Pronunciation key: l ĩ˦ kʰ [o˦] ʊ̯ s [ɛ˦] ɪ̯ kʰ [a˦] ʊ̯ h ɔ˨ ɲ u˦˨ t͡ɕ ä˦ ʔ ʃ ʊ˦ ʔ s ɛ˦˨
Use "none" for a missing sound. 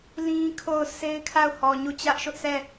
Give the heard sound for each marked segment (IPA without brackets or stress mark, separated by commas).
o˦˨, e˦, a˦˨